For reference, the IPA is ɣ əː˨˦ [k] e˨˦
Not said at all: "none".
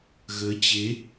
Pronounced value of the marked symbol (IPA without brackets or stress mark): t͡ɕ